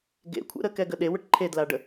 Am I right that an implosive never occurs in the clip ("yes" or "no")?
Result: no